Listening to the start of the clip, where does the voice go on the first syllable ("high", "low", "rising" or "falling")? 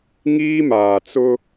high